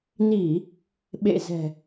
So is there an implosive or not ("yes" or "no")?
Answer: yes